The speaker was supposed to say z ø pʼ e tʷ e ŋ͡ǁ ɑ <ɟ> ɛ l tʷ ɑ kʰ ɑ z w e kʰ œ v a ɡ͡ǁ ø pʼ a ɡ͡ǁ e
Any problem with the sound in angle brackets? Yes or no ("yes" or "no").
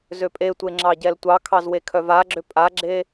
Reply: no